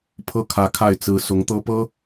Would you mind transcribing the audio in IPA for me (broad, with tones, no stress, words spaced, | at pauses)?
pʰɤ˥˩kʰä˧˥kʰa˥˩ɪ̯ t͡sɹ̩˧˥ sʊ˧˥ŋt̪ɤ˥pɤ˥